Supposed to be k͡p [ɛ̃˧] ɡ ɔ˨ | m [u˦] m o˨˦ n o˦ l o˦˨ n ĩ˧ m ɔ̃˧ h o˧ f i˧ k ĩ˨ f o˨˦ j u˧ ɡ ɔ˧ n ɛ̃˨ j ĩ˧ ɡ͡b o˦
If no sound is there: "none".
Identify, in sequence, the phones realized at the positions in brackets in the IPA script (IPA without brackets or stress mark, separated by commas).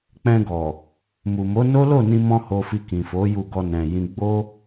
ɛ̃˧, u˨